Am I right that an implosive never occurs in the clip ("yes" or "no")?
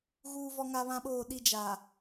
no